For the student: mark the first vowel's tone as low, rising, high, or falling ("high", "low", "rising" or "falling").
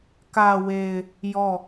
low